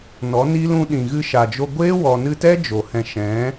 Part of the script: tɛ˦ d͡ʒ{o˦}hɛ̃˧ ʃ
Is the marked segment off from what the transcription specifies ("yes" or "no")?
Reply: yes